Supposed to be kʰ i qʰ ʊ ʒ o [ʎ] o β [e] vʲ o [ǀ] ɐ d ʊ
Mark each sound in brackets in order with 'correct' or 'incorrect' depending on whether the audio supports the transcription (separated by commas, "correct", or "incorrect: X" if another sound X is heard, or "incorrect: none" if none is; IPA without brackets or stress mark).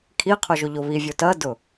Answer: correct, incorrect: i, incorrect: t